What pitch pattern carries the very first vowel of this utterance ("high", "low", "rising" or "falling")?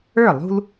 falling